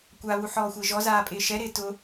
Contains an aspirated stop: no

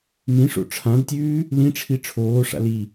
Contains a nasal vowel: yes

